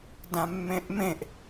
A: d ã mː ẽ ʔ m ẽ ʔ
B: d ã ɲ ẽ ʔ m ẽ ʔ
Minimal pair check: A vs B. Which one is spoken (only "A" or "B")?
A